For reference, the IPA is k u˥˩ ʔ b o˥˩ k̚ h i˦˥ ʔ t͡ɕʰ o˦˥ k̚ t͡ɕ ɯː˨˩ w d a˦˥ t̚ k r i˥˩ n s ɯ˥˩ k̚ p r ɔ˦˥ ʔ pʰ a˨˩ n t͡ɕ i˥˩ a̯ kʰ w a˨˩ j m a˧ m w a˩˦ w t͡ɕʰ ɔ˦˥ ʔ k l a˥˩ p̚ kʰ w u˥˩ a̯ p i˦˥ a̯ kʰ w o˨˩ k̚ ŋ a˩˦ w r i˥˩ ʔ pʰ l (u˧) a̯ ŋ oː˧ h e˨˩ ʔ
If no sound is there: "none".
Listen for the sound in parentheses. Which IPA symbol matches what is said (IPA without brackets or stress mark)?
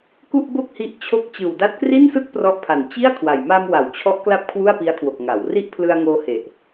ɯ˧